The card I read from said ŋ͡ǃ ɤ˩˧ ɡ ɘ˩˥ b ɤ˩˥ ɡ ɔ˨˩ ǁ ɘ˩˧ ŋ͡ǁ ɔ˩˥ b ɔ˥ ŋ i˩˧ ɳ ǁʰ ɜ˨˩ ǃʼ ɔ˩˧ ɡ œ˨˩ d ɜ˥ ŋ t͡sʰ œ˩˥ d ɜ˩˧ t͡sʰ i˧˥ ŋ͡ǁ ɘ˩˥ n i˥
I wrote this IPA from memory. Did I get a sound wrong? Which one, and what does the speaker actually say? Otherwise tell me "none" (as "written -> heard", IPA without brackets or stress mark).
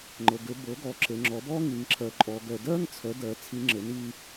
ɳ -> ŋ